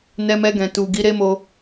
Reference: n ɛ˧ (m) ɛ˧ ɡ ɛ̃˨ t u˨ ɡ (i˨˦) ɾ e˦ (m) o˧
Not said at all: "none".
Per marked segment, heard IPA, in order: m, i˨˦, m

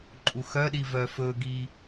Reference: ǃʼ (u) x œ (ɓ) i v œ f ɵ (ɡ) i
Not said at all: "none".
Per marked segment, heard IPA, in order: u, ɗ, ɡ

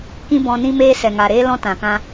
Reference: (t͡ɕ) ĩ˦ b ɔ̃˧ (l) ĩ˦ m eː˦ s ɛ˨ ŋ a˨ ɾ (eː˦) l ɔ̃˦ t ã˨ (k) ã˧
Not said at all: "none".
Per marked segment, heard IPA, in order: k, n, eː˦, k

